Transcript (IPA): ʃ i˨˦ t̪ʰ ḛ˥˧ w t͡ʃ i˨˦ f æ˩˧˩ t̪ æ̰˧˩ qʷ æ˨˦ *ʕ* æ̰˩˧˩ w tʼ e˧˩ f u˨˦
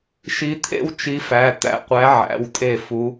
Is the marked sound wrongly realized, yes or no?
no